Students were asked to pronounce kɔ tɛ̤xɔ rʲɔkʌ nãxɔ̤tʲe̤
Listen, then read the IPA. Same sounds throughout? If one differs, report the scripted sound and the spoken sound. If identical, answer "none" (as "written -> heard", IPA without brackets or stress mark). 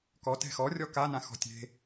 ʌ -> a